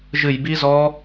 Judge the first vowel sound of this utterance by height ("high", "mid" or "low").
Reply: high